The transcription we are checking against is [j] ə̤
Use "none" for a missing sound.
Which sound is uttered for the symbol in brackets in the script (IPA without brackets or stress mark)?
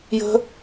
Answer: j